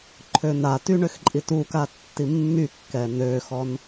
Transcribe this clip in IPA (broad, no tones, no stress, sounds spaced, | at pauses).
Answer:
ǃʰ ø n a t y ɳ ø x ǃʼ i t u k a tː i mː y kː ɛ n ø x ɔ n